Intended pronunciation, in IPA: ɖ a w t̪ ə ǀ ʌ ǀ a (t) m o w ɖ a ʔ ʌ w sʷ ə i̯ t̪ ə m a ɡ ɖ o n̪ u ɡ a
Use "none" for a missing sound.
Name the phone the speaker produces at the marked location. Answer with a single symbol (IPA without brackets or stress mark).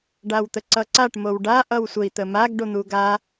ʈ